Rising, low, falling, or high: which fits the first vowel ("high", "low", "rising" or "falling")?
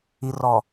low